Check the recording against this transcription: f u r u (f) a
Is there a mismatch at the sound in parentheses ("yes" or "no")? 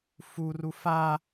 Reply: no